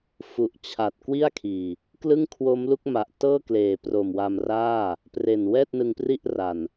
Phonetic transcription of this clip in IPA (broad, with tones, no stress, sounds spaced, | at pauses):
f u˨˩ ʔ t͡ɕʰ a˨˩ t̚ k w i˥˩ a̯ kʰ iː˨˩ | k l ɯ˥˩ ŋ kʰ w o˦˥ m l u˦˥ k̚ m a˨˩ ʔ t ɤː˥˩ k l eː˨˩ p r o˨˩ m w a˧ m r aː˥˩ | p r e˨˩ n w ɛː˥˩ t̚ n ɯ˧ ŋ p r i˥˩ ʔ r a˨˩ n